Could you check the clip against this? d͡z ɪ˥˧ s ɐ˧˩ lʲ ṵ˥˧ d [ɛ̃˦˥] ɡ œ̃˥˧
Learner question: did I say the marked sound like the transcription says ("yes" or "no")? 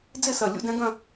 yes